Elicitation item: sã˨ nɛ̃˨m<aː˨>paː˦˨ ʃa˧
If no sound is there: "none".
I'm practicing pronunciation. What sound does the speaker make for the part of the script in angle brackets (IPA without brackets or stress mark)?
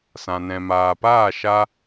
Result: aː˨